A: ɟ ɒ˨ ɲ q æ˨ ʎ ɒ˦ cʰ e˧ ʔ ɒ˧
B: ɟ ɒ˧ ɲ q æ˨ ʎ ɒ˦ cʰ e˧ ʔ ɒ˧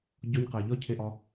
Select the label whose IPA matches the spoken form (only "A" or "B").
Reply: B